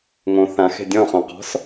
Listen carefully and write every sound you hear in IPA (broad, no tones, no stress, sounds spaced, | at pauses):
ŋ õ θ ã x e̤ dʲ ɔ̃ χ õ q ɔ̤ s